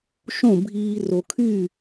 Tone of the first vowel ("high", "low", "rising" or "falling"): falling